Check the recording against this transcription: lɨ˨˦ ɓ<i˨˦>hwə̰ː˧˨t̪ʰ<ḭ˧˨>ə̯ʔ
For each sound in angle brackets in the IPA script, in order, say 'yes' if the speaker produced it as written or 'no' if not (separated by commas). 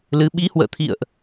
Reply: yes, yes